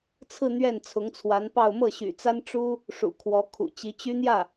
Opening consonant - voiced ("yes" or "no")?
no